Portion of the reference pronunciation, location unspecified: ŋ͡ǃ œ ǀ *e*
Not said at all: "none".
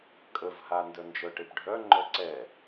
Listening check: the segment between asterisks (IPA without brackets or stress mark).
ɛ